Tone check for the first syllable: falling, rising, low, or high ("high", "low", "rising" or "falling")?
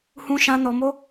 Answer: high